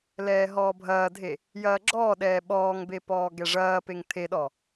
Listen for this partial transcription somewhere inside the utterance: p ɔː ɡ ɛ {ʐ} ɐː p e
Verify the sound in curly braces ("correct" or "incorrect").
correct